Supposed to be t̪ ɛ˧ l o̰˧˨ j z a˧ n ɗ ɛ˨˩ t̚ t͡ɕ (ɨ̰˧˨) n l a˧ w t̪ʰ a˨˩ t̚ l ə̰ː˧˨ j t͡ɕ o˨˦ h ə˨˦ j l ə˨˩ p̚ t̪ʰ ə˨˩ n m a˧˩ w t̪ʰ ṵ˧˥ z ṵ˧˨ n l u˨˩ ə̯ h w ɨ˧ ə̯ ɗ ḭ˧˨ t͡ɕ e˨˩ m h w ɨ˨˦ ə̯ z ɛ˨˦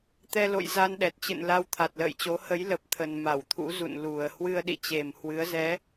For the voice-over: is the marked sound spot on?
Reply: yes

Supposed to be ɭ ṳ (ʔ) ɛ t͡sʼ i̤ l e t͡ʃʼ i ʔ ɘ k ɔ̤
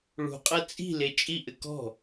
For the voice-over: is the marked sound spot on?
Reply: no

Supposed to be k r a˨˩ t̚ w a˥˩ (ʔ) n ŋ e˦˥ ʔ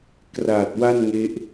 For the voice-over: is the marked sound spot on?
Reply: no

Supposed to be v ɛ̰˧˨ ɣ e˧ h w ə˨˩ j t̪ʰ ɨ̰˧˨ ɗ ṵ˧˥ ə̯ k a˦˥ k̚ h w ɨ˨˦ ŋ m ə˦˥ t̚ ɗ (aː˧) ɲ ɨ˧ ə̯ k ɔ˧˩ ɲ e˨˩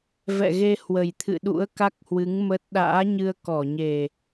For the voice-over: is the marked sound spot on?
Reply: no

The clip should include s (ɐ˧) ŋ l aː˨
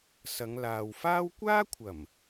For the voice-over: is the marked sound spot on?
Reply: no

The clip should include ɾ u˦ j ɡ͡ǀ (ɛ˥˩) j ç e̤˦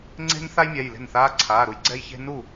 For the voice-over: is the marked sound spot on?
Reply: no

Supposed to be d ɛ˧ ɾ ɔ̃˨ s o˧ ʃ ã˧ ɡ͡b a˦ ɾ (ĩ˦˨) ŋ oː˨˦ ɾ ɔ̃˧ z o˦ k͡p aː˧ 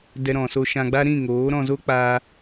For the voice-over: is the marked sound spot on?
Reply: yes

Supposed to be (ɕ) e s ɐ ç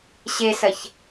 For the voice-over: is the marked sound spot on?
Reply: yes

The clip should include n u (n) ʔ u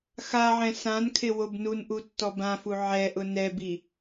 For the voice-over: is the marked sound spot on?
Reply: yes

